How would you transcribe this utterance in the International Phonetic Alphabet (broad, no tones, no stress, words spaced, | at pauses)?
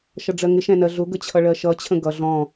ʃʌɖ͡ʐɜŋɪ ʃɛ̃nɜɮʊ ɡət͡ɕʰʌɭɜʃʌ t͡ɕʰə̃ɡʌ ɮɔ̃